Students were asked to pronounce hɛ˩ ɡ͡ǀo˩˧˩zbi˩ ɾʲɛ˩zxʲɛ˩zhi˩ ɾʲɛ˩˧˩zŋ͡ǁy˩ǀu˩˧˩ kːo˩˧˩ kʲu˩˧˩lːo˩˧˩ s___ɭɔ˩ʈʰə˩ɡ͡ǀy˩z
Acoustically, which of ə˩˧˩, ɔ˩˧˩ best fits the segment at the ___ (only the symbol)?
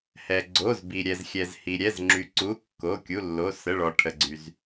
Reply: ə˩˧˩